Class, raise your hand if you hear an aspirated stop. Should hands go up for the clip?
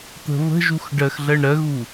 no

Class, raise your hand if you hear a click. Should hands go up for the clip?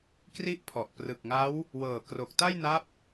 no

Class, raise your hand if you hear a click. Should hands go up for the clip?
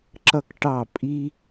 yes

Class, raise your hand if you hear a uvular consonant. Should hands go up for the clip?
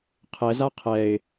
yes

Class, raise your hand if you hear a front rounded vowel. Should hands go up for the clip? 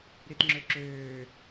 yes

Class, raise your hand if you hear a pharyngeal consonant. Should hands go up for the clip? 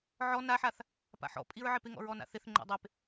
yes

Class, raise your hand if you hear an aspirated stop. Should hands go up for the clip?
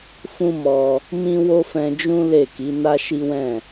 no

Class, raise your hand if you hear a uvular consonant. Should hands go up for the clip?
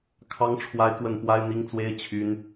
no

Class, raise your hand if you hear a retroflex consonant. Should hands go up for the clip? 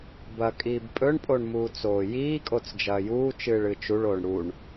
yes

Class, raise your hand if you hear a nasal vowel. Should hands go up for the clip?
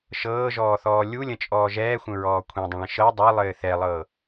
yes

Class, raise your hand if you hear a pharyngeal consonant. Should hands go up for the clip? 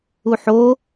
yes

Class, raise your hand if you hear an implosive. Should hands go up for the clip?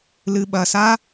yes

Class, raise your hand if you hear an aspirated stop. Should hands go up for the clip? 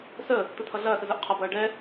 yes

